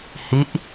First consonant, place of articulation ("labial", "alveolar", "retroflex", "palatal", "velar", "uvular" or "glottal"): glottal